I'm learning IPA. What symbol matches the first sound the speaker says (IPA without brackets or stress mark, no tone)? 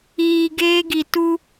iː